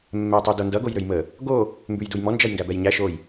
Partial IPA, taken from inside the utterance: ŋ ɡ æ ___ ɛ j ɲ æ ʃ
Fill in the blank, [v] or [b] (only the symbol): b